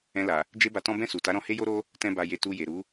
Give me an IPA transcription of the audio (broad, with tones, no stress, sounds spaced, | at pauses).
ɛ̃˧ l a˨ | d͡ʒ e˦ b a˧ t ɔ̃˦ b ɛ̃˦˨ s u˨ t a˨˦ ɾ ɔ̃˧ h e˦ j o˦ ɾ o˦ | t ɛ̃˦ b a˧ j e˧ t u˧ j e˨ ɾ u˨˦